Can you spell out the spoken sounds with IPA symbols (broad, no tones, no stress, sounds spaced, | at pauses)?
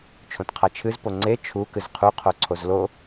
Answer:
t͡ʃʰ õ t qʰ a t͡ʃʰ ɨ z p o ŋ͡ǀ e t͡ʃʰ u k ɨ z qʰ u qʰ o ǀʰ o z l o